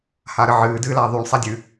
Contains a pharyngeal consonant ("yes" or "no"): yes